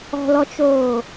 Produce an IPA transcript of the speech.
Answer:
ɔ̤lɔt͡ʃoː

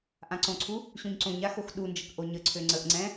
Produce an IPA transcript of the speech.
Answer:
ʔãǀõǀʰu | ɕũɲǀõɲa xoxɗund͡ʒək ʔoɲəǀʰø ŋ͡ǀəʔŋ͡ǀɛ̃

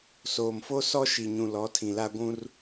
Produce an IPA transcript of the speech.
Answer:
soː˨mfo˦sɔ˦ ʃi˨ɲũ˨ lɔ˨˦tʰĩ˨la˦ ɡʷũ˦r

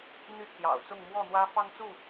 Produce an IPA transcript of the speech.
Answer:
n̪y˥˨ pʰjɑ̰˨˩ʊ̯t͡sʊ˥˨ŋ mwɔ˥˨n̪wä˦ fɑ˦ŋt͡su˥˨

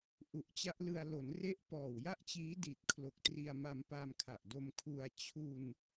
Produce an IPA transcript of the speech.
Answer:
ʔu˨˩ʔt͡ɕa˦˥ʔlɯ˧a̯ lo˩˦nre˦˥ʔ pɔː˨˩wja˥˩ʔt͡ɕiː˦˥ di˨˩t̚kʰlo˨˩k̚ tri˧a̯ma˧m pa˧mkʰa˨˩ʔdo˧m kʰu˧a̯ t͡ɕʰu˧n

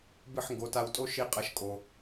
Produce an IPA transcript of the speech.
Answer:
bɨ˥˩ħŋɡo˩˥ta˧wtʼo˥ ʃi˧qʼɐ˩˥ʃ kʼo˩

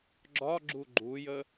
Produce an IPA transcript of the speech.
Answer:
ɡ͡ǁɒɡ͡ǁu ɡ͡ǃujə

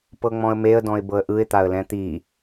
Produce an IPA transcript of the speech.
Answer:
pɤŋ͡mɔ̃ə̯meə̯dɔ̃ɪ̯ bɤə̯ʔɯɪ̯t̪aə̯ lɛ̃t̪i

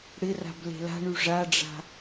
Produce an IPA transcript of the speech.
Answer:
ɽɪra̤b le̤la̤ɳy ʐaɖ͡ʐa̤

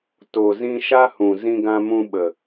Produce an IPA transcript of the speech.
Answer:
to˨zĩ˧ ʃa˦hũ˨ zĩ˧ɡã˧mũ˧ ɓə˨

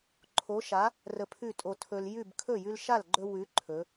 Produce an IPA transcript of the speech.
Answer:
ǃʰo˨˥ʃa˨˥ | rə˧pʰʉ˥˩tʼo˧ tʰɵ˧l jʉ˥˩b kʰɵ˥˩jʉ˧lʃa˥˩lɡ͡ǃɵ˧ wʉ˨˥ ǃʰɵ˩˧

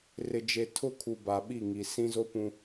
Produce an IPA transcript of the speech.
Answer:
rɪ˨d͡ʒe˨tʰʊ˦˨kʰu˨ ba˨ɓi˦˨ŋi˨ sĩ˦ zo˦pũ˦

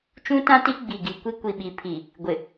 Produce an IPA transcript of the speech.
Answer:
t͡ʃũ˦tã˦ti˦ ɡ͡bi˨ɡi˨ kʷi˦kʷi˨ɓi˨ pʰi˨ | ɡʷɪ˨

